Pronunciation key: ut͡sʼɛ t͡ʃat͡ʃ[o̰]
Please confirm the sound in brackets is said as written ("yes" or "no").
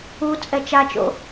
yes